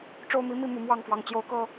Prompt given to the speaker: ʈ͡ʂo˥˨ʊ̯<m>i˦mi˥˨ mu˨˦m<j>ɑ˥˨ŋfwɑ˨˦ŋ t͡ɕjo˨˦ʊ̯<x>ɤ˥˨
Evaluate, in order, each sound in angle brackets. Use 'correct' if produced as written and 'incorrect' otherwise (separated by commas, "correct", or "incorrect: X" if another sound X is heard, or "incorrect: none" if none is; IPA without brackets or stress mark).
correct, incorrect: w, incorrect: k